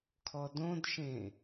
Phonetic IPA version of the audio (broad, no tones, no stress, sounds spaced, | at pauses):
kʰ ɔ d õ d ʃ ẽ